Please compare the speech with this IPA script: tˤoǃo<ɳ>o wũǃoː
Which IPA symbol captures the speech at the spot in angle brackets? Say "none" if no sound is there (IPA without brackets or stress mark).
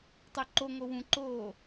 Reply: ŋ